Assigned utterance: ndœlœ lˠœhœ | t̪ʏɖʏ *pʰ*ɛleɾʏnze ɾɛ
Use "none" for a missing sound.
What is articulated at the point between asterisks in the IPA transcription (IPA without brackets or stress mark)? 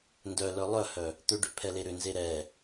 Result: pʰ